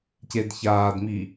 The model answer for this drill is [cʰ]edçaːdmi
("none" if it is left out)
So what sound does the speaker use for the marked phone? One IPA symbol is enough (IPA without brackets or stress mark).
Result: c